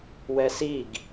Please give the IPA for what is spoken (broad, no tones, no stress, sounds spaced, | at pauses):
w ɛ s i ɡ